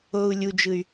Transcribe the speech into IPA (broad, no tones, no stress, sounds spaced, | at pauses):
o u̯ lʲ u d͡ʒ ɯ y̯